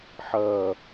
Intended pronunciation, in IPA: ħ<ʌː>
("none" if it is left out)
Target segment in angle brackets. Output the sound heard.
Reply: ʌː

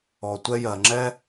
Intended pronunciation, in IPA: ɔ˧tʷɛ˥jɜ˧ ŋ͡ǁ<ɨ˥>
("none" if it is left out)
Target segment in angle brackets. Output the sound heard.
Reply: ɛ˥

